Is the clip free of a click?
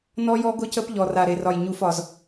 yes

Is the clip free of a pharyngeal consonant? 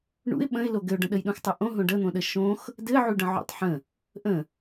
no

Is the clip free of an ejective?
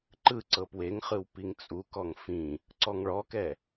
no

